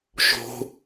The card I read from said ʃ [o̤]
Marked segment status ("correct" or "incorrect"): correct